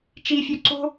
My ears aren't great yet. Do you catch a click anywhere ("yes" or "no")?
yes